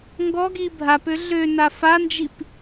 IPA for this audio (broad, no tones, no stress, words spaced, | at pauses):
ŋɡɔɡi bʱapø ɮø nafand͡ʒip